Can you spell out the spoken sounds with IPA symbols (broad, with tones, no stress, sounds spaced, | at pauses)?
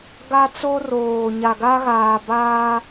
ɡ a˦ t͡s o˦ r oː˨ ɲ a˨ ɡ a˦ ɣ aː˨ b aː˦